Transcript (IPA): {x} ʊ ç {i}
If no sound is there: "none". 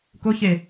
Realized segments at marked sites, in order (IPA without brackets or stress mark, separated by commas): k, e